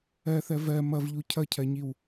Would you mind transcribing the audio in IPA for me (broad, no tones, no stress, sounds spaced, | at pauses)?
ɜ θ ɜ v ɜ m ʌ v ʎ u cʰ ʌ cʰ ɜ ɲ i w